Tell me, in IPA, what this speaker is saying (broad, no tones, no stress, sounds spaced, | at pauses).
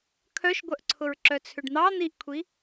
kʰ œ ʃ ɡʷ œ ʔ ǀʰ ʊ ɹ ǁ œ t͡sʰ ʏ ɖ n̪ ɑ n̪ i ʔ kʷʰ i